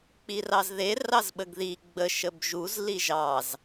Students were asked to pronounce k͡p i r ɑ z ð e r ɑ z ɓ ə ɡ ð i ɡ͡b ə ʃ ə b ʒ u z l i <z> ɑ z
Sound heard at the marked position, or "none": ʒ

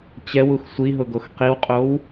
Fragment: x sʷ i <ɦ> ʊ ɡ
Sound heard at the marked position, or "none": ɦ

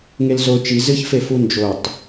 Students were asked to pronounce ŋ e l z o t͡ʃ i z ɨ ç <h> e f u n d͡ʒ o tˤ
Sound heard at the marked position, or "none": f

